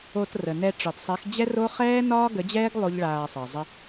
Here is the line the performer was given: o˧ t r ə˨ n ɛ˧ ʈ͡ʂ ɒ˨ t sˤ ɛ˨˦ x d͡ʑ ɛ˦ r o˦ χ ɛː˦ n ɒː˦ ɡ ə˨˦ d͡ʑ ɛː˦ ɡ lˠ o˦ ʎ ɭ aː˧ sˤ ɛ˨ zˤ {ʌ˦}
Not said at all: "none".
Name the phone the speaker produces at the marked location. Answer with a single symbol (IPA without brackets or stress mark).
ə˦